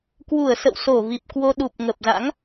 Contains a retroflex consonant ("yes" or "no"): no